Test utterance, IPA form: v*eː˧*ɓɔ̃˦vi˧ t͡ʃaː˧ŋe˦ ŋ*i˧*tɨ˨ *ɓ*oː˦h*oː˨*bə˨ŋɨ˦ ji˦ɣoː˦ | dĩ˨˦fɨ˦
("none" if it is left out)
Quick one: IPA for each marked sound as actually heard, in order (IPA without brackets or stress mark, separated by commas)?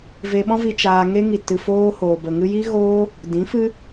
e˧, i˨, f, oː˨